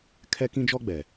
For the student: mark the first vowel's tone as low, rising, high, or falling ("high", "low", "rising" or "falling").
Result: high